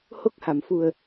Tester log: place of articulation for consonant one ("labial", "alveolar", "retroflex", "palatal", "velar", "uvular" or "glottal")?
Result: glottal